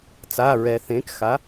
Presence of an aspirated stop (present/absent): absent